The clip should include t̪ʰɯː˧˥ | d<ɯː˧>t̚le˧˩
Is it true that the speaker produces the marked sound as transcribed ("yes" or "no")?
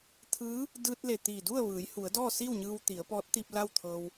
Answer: yes